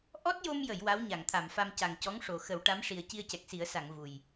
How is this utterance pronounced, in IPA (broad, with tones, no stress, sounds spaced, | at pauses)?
ʔ ɔ˦˥ t̚ j o˧ m j ə˨˩˨ j w a˧˥ w ɲ a˨˩˨ ŋ t̪ʰ a˨˩˨ m f a˧ m c a˨˩ ŋ c ɔ˧˥ ŋ ʂ o˨˩ x ə˨˩˦ w ʈ a˧˥ m ʂ i˨˩ ə̯ c i˧ ə̯ c ɛ˨˩ k̚ s i˨˩˦ ə̯ s a˨˩˨ ŋ v u˨˩ j